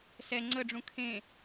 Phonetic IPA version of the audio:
s ɛ ŋ͡ǀ ə ɖ͡ʐ ũ kʰ ẽ

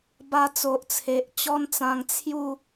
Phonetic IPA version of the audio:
b a˧ t͡s o˨ ʔ t͡sʰ e˨ ʔ t͡ɕ ɔ˦ n t͡s ã˧ ŋ t͡sʰ j u˥˧

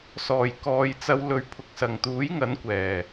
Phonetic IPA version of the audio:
s ɔː˨˩ j k ɔː˨ j t͡s ɐ˨˧ w l ɵ˨ ɥ pʰ ʊ˨ k̚ s ɐ˨˩ ŋ t̪ uː˨˥ j ŋ ɐ˨˥ n kʷ ɛː˨˩

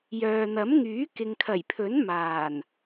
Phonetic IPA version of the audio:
j œː˨ n̪ ɐ˨˥ m ŋ yː˨˥ k ɪ˨ ŋ kʰ ɐ˨˩ j pʰ ɵ˨˥ n m aː˨˩ n

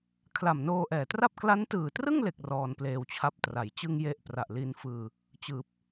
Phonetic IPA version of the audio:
kʰ l a˨˩ m n oː˧ ʔ ɛː˨˩ t r a˥˩ p̚ k l a˦˥ n t ɯː˨˩ t r ɯ˥˩ ŋ l e˨˩ k̚ r ɔː˧ n p l eː˧ w t͡ɕʰ a˦˥ p̚ t r a˩˦ j t͡ɕ ɯ˥˩ ŋ j e˥˩ ʔ p r a˨˩ ʔ l i˧ n f ɯː˧ | t͡ɕ ɯː˨˩ p̚

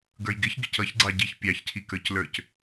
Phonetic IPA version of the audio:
ɡ ə˞ j ɡ ɪ ç ɡ ɪ c ʌ ç ɡ͡ǀ ɑ ɟ i ç pʲ ɑ ç cʰ i k ə˞ c l ə˞ c

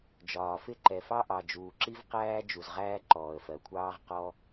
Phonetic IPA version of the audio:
d͡ʒ ɒː˩ f ɪ˥ ǃ ɛ˩ f ɑ˥ ʔ ɑ˩ d͡ʒ uː˩ ǁ i˥ v q æː˥ d͡ʒ u˩ z ʁ æː˥ ǃ ɔː˩ ə̯ f ɜ˩ kʷʰ ɑː˥ ʁ q ɔ˥

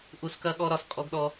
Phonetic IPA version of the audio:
ʔ u˧ s k ɐ˦ ɠ ɔ˦ ɾ ɒ˧ s kʼ ɔ˦ ɡ ɗ ɔ˦

